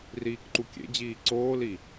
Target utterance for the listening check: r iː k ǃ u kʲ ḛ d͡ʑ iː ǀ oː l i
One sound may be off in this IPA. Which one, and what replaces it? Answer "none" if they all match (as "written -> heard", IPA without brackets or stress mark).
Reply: none